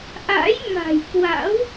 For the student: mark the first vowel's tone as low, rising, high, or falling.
rising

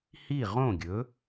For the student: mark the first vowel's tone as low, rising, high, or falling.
falling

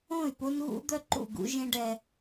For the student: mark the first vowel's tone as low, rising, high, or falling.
falling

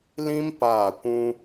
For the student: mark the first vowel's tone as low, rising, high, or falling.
high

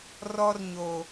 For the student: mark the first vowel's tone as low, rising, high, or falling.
high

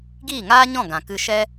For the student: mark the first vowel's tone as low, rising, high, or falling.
falling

